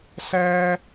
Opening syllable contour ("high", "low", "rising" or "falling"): high